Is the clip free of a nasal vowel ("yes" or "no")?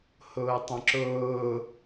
no